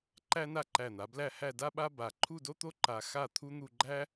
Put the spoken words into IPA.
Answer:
ǃ æ˥ n a˥˧ ǃ æ˧˩ n̪ a˩˧ b l æ˥˧ h æ˥˧ d a˥ ɓ a˥ b a˧˩ ǃʰ u˥˧ d o˥ t̪ o˥ ǃ a˧ x a˥˧ t̪ʰ u˥ n̪ u˥˧ ɡ͡ǃ æ˥

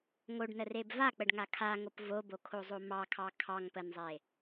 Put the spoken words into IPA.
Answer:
ŋ o ɖ n ə r e b v a k͡p ə ɖ ŋ a kʰ a ŋ o p v o b o kʰ o zˤ o m ɑ kʰ ɑ kʰ ɑ ŋ p ə n zˤ e

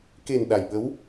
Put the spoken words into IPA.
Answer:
k e˨˩ n ɗ a˨˩ j ɓ ə˧˥ w

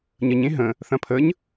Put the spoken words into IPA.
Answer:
ɲ ə ɲ ẽ ɦ ə̃ | θ ɐ̃ pʰ ə ɲ

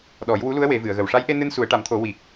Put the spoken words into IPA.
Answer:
ɗ ɔ˨˩˦ j w u˧˥ l u˧˥ ə̯ w e˨˩˦ v ɨ˨˩˨ ə̯ ɣ ə˨˩ w ʂ a˧˥ j ʔ e˧ n ɨ˧ n s u˨˩˦ ə̯ ʈ a˨˩˦ m t̪ʰ o˨˩˦ w i˨˩ k̚

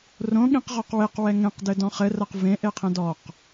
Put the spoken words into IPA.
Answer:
r õ ɠ ĩ q ʁ ɔ q w e q w ɛ ŋ ɛ̃ q d ɘ d ɔ̃ χ ɘ r ɐ q v ẽ ʔ e qʰ ɛ̃ d ɔ q

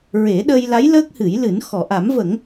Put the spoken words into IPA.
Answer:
ɹ e˨˩˦ ɗ ə˧ j l a˧˥ j l əː˦˥ k̚ h ɨ˨˩˦ j l ɨ˨˩˦ n x ɔ˨˩˨ ʔ a˨˩˦ m v ə˨˩˦ ŋ

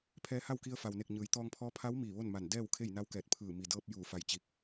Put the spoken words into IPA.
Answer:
pʰ ɛː˧ h a˥˨ w k i˧ ə̯ f a˩ w n e˧˩ k̚ ɲ ɯː˩˧ j t̪ ɔː˧ ŋ pʰ ɔː˧˥ pʰ a˧˥ w m iː˧˩ ʋ o˥˨ n m a˧˩ n d ɛː˥˨ w kʰ e˥˨ j n a˧˥ w k ɛː˧˩ t̚ pʰ ɯː˧˩ m i˩ d ɤː˧ p̚ j uː˧˩ f a˧˩ j t͡ɕ i˧˩ k̚

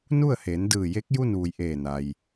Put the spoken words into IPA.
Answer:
n u˥˨ ə̯ h eː˩˧ n d ɯː˧˩ j e˧˥ k̚ j u˥˨ n ʋ u˩ j ʔ eː˧˩ n a˩ j

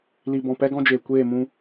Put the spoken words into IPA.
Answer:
l i˨ b ɔ̃˨ p ɛ˦ ɡ ɔ̃˦ d͡ʒ eː˨ kʷ eː˦˨ m ũ˧

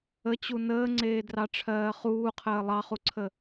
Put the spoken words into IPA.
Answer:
ə t͡ɕ u n əː ŋ͡ǀ eː d r ɑ ʈ͡ʂʰ ɜː χ uː qʰ əː lˠ ɑ χ u ǀʰ ə

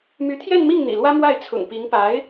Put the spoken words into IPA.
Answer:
m y˧˥ t̪ʰ j ɛ˥˧ n m i˥˩ ŋ n̪ ḭ˨˩ l w ä˥ m w a˥˩ ɪ̯ t͡sʰ ʊ̰˨˩ ŋ p i˧˥ ŋ p a˧˥ ɪ̯

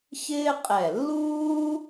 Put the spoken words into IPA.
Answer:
ç ɪː˥ qʼ ɛ˧˩ lː uː˥

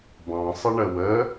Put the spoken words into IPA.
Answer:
b ɑ̃ sˤ ɪ ɳ ə w ə

